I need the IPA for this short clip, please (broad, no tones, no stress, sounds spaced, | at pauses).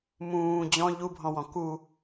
m ũː d͡ʑ ɔ̃ ʎ u bʱ ɔ̃ w ɔ̃ k u